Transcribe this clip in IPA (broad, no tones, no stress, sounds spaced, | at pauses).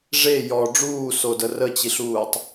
ʐ e j ɔ ɖ͡ʐ uː s o d ə r ə t͡ɕ i ɬ uː tˤ